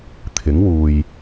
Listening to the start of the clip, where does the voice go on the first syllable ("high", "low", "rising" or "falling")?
rising